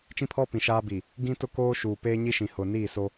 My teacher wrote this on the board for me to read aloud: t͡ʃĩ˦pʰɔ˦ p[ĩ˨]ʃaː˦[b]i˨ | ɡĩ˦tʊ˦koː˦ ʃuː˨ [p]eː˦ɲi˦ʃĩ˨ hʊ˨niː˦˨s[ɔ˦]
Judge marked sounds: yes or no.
yes, yes, yes, no

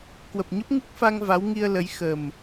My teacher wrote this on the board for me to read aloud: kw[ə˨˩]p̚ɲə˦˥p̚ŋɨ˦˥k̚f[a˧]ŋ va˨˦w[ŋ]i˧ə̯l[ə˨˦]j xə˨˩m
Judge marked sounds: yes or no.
yes, yes, yes, yes

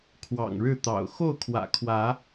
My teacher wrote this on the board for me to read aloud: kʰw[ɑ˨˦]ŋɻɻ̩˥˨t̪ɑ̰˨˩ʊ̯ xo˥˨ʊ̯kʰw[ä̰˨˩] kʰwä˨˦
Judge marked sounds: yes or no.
no, yes

